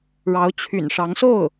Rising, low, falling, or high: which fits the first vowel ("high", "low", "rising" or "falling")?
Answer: rising